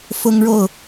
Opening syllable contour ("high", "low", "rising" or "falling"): high